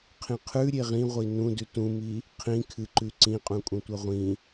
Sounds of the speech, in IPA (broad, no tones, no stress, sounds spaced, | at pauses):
qʰ ĩ qʰ ʉ ɾʲ e ʁ ĩ ʁʷ i n ũ d ʉ t ũ m i | qʰ ĩ kʰ ɨ ǃ ʉ ǀ ĩ qʼ ũ kʼ ũ tʷ ɐ ʁʷ ĩ